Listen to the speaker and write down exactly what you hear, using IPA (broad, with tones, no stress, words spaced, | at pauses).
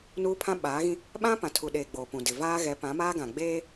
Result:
nuː˦pʰã˦ɓaː˨˦ɣĩ˦ | ɓã˦pã˨tʰu˨ɗeː˨ ɡ͡boː˨pũ˨ dɪ˨ vaː˦ɣɛ˨˦ pã˨˦maː˦ɡã˨ ɡ͡beː˦